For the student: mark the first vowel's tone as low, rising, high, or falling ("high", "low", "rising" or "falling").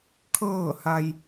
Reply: falling